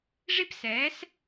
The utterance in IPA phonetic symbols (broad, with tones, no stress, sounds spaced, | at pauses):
ʐ i˥ p s ɛː˨˥ s